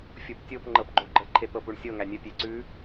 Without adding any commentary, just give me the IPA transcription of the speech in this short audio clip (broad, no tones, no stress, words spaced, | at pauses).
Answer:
fʲoptʲop ŋ͡ǃɤpɡ͡ǃoɡ͡ǃə ǃʰet̪ɤpuɳsʲɤ ŋænʲə pʲeǀʉ